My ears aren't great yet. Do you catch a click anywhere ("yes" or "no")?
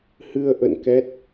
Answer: no